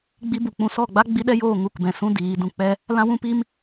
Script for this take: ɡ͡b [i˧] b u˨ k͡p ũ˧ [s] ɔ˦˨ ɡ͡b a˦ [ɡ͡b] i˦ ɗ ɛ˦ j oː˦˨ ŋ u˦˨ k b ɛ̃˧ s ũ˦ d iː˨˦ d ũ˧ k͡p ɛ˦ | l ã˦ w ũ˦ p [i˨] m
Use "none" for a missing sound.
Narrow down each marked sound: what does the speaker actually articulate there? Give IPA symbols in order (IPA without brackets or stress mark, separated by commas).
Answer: i˧, s, ɡ͡b, i˦